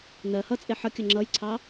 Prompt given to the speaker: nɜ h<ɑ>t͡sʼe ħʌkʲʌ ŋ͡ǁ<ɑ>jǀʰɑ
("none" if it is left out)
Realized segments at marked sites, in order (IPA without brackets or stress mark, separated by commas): ʌ, ʌ